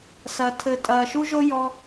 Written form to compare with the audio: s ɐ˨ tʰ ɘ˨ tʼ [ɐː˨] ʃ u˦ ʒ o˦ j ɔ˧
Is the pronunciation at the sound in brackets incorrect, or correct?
correct